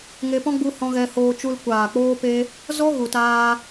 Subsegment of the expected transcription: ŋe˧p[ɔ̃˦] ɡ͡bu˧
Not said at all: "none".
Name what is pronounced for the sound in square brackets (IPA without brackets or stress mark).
ɔ̃˦